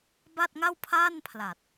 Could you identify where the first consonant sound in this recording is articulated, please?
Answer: labial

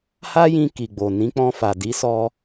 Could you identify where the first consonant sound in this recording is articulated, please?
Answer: glottal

